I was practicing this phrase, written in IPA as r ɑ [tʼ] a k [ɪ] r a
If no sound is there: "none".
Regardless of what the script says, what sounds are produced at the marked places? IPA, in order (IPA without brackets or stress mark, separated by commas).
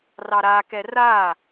ɾ, ɛ